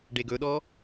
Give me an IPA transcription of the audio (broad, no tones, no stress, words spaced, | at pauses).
ɖeɡɵɗɔ